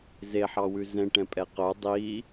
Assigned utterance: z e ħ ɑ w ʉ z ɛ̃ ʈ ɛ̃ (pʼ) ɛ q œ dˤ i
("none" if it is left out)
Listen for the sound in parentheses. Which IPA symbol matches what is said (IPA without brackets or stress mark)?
pʼ